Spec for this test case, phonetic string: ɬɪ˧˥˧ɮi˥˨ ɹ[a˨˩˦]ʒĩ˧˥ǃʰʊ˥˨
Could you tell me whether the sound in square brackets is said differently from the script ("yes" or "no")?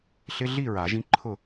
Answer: no